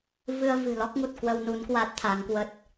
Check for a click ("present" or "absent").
absent